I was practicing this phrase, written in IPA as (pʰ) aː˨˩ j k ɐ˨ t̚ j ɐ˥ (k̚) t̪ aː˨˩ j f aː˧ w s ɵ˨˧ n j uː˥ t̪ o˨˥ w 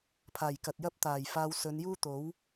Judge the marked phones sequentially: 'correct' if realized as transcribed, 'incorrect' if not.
correct, incorrect: p̚

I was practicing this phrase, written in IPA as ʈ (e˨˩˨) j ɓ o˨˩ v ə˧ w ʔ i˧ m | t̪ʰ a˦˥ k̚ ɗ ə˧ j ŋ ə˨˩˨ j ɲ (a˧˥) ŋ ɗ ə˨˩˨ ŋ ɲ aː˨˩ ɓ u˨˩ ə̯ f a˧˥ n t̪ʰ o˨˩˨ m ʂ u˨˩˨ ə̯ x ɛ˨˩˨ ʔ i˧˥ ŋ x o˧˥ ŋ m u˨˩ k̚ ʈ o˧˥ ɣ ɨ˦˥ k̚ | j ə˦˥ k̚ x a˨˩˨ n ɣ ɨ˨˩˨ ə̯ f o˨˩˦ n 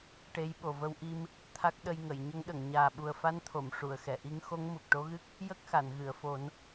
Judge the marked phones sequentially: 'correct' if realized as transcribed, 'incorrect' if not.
incorrect: e˧˥, incorrect: ə˧˥

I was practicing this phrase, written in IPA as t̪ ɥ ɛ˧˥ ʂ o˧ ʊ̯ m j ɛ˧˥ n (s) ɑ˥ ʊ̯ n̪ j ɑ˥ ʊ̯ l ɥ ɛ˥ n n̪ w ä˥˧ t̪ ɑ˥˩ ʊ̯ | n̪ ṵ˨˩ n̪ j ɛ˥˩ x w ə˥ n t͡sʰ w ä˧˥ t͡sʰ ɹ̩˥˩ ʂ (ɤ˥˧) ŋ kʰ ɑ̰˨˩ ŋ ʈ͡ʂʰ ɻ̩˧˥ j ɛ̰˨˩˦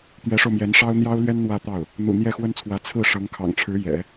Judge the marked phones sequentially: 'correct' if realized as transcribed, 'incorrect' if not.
incorrect: ʂ, incorrect: ɤ˧˥

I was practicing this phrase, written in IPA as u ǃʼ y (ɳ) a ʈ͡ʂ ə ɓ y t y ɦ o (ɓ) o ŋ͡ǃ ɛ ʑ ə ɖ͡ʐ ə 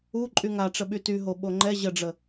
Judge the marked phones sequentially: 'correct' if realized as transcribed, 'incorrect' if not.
incorrect: ŋ, correct

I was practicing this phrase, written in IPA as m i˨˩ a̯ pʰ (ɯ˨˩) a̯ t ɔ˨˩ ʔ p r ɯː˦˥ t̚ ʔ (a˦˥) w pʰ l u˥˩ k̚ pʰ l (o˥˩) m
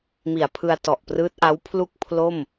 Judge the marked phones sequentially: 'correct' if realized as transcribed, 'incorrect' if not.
incorrect: ɯ˧, correct, correct

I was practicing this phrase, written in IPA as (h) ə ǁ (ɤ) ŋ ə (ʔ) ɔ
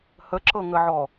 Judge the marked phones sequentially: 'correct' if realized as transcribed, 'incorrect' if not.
correct, correct, incorrect: ʕ

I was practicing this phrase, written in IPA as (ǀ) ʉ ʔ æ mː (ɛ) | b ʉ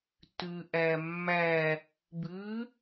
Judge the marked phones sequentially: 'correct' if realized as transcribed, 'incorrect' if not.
incorrect: t, incorrect: æ

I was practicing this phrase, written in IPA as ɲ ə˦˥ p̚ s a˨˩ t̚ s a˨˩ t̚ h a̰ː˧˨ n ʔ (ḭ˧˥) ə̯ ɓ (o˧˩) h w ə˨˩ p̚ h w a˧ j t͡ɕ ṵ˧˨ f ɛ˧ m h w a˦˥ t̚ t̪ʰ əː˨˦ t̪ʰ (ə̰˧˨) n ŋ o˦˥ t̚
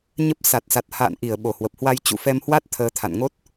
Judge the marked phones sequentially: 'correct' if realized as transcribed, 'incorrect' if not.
incorrect: i˧˩, correct, incorrect: a̰˧˨

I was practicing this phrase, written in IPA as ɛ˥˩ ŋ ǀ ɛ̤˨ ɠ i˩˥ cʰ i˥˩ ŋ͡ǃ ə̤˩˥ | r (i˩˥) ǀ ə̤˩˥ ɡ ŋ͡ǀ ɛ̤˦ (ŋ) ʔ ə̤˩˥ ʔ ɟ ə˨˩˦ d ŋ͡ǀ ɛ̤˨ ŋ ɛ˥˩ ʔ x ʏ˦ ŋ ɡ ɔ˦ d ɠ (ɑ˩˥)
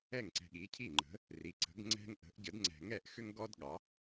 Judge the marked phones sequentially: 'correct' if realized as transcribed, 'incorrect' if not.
correct, correct, correct

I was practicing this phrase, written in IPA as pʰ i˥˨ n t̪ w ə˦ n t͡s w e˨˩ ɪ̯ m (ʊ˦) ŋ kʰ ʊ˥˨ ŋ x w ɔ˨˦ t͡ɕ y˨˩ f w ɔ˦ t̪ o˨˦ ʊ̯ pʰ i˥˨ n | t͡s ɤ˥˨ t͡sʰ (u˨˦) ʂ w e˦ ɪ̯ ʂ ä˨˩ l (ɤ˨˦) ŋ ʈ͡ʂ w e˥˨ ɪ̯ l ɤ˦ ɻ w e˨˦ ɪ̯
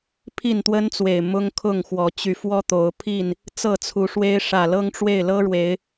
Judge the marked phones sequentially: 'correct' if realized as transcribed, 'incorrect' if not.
correct, correct, incorrect: ɤ˦

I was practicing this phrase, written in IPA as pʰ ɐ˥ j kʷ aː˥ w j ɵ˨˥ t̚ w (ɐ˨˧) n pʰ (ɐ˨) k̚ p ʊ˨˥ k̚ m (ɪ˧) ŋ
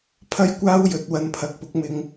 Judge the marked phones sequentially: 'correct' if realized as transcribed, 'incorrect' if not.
incorrect: ɐ˧, correct, correct

